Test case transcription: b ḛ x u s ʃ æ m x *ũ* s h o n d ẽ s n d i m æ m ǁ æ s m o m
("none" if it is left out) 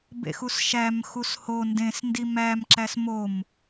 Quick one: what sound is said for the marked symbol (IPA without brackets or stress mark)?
u